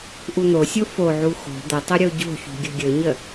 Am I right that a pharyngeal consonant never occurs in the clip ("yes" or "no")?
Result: no